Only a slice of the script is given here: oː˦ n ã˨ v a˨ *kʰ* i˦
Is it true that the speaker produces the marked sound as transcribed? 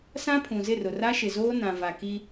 no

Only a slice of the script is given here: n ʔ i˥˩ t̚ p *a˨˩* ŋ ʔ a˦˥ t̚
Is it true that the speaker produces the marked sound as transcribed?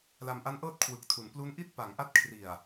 no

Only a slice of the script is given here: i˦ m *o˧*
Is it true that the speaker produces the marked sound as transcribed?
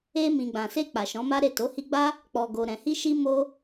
no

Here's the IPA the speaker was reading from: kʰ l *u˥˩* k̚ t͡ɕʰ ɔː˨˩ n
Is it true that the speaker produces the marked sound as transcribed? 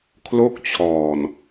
no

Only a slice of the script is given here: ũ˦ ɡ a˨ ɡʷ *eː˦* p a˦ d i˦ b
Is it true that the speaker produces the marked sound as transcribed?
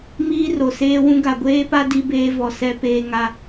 yes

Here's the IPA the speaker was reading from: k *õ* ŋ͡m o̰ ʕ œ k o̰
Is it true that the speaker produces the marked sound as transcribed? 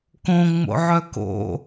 yes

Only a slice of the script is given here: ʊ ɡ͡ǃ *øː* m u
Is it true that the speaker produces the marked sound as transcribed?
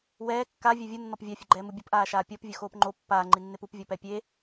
no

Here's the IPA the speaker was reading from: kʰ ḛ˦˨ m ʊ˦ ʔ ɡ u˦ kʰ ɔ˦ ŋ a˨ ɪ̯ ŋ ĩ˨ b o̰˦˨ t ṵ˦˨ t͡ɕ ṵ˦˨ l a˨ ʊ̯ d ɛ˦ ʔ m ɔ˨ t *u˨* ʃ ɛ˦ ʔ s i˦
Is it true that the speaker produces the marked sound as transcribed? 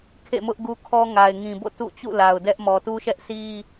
no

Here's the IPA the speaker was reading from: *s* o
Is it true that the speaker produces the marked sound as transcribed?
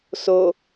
yes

